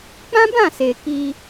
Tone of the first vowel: high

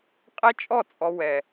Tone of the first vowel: high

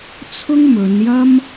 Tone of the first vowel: high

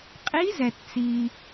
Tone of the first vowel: rising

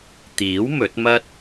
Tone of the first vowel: rising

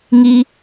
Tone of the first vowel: high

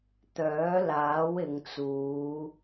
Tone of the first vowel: rising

